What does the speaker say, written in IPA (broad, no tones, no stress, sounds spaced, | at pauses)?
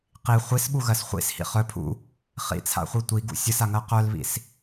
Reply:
q i χʷ i s ɓ u ɣ ɜ s χʷ ḭ s h ḭ χ œ pʰ ṵ | χ ḭ t͡sʰ a̰ χʷ i tʷ i ɡ ṵ sʲ ɯ s a ŋ ɜ q œ l β ḭ s